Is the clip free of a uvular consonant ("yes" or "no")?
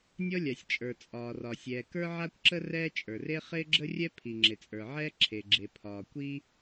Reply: no